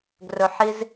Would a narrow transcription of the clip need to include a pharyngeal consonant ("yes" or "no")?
yes